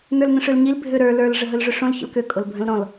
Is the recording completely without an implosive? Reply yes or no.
yes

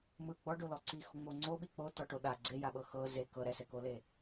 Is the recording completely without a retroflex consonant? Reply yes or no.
no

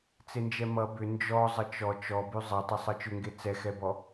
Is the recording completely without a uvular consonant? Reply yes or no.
yes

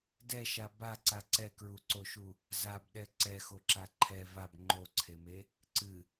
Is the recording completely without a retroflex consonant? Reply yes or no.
yes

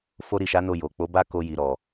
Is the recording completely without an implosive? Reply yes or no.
yes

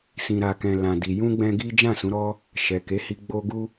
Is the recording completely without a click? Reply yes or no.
yes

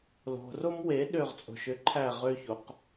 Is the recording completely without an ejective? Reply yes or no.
no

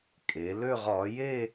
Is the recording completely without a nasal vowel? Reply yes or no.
yes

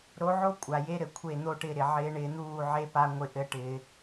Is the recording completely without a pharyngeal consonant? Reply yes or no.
no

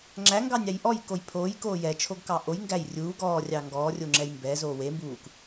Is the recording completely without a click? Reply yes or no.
no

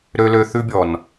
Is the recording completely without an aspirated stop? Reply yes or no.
yes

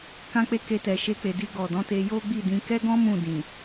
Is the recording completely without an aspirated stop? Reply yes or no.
yes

